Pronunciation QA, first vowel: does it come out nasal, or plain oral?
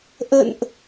oral